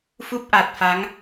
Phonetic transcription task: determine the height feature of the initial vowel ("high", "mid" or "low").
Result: high